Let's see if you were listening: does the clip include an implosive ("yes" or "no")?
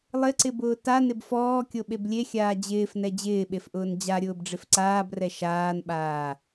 yes